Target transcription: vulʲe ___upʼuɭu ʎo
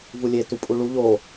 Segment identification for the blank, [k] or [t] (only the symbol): t